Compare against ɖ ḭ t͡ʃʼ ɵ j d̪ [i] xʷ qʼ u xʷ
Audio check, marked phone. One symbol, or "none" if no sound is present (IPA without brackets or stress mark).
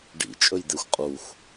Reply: e